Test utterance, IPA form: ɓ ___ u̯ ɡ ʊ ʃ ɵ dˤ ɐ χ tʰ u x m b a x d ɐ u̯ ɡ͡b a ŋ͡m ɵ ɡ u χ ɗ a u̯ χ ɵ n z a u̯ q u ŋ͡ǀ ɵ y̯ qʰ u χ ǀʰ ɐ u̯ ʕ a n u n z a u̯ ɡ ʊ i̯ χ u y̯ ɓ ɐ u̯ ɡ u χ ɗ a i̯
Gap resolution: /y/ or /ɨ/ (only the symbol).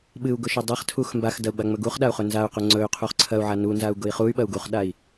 ɨ